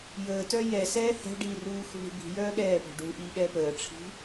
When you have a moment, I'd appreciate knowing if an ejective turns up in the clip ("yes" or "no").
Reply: no